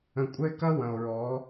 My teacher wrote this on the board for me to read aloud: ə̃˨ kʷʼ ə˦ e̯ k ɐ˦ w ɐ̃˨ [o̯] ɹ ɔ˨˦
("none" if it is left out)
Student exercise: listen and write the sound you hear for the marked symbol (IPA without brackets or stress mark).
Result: o̯